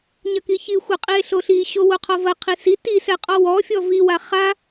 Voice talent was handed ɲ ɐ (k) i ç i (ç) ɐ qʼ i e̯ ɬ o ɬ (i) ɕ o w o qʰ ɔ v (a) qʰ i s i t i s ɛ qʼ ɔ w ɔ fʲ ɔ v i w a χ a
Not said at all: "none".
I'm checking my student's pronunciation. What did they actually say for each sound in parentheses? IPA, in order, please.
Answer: k, xʷ, i, ɐ

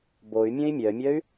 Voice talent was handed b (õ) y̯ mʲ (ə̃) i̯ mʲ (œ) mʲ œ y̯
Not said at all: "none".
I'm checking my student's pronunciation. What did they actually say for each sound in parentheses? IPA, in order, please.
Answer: o, ə̃, œ

